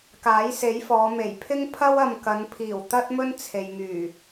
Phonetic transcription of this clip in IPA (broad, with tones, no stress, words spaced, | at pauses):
kaː˨˥jse˨˥jfɔː˨˧ me˨˩jpʰɪ˥ŋ pʰɐ˥wɐ˧mkɐ˨˧npʰiː˨˩w t̪ɐ˥t̚mɵ˥n t͡sʰe˨jŋyː˨˩